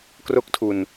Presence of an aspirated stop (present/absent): present